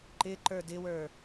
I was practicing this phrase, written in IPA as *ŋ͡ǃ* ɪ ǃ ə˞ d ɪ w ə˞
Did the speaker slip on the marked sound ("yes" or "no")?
yes